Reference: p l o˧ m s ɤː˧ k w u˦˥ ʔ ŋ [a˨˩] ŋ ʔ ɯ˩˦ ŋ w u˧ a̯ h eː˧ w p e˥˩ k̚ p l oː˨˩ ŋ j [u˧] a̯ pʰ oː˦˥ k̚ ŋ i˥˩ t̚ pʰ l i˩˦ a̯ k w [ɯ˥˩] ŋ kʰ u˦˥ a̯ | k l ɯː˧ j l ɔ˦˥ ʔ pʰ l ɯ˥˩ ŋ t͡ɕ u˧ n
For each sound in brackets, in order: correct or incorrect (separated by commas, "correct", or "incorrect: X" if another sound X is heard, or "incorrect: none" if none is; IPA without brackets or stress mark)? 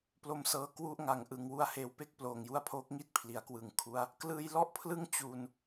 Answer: correct, incorrect: u˦˥, incorrect: ɯ˨˩